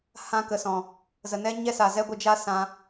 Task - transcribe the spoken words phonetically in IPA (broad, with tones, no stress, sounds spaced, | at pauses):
h ã˧ k ə˨ s ɔ̃˨ | z ə˨ n ɛ˦ ɲ ɛ˦ s a˨ z ɛ˦ ɡʷ ə˧ d͡ʒ a˦ s ã˧